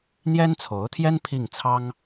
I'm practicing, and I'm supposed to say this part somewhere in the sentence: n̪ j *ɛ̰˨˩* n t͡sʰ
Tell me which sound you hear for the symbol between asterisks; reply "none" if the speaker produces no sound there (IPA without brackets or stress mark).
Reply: ɛ˥